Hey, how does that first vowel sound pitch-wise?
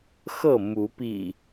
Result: falling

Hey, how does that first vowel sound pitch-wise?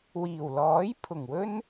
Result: low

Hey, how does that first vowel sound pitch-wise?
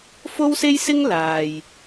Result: high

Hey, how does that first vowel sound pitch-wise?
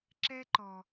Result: high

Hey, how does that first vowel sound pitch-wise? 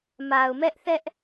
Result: low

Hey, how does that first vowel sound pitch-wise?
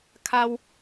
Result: high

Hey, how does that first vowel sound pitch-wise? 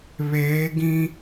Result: rising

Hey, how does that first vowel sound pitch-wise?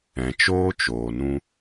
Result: low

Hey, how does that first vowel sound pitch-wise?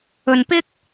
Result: low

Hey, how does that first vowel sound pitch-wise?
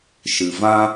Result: low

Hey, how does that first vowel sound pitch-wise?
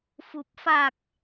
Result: low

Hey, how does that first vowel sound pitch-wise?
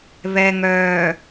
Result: low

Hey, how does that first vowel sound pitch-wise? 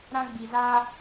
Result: high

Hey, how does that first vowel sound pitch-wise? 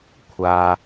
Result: high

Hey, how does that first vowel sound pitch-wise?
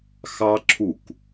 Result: high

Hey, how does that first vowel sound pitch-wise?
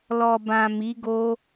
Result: low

